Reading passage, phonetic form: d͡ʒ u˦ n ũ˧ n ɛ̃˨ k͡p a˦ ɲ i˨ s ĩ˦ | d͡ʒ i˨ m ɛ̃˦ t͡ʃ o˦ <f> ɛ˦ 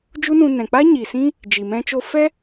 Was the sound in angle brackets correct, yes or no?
yes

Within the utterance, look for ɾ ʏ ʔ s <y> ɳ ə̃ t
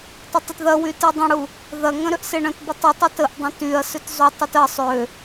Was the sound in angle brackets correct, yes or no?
no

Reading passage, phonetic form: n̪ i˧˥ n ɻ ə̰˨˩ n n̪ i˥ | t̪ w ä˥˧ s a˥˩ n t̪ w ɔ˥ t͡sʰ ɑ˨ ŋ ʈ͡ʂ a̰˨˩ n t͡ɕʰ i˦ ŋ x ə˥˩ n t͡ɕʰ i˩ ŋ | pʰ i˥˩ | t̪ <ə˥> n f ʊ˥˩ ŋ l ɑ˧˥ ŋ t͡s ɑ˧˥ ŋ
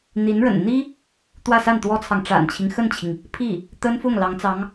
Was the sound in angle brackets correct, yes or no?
yes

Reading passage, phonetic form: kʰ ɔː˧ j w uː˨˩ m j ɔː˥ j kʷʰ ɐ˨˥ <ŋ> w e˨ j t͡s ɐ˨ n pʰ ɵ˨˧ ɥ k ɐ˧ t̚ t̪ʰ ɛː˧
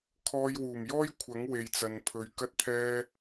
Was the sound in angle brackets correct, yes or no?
yes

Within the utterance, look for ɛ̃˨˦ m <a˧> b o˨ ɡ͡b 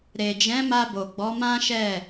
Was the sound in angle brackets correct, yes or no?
yes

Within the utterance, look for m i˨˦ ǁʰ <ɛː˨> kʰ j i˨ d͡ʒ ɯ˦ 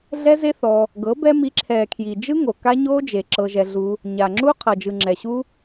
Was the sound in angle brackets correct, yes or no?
yes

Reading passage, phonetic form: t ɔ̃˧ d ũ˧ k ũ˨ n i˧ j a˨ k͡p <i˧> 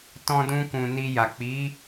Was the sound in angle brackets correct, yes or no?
no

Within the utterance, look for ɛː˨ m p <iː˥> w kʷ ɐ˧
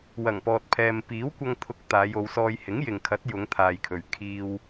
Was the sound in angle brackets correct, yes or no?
no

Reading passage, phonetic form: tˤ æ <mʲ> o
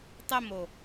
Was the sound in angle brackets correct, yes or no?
no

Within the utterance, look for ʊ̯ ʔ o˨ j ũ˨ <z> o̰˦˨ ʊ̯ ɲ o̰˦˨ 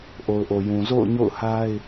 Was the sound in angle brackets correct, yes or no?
yes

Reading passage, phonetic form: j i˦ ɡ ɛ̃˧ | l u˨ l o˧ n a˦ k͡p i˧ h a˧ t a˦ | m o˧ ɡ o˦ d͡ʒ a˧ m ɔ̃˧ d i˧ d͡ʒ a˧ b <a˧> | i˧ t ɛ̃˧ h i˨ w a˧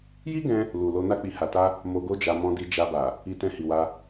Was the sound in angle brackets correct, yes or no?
no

